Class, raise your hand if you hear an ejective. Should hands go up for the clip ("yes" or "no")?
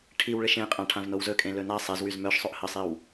yes